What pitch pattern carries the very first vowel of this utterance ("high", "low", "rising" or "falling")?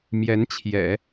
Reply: rising